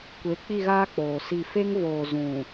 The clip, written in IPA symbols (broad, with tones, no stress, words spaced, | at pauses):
kʷe˨˦k͡pi˦˨ɣaː˦ k͡poː˨si˦˨ fe˦ŋvoː˨ zũ˨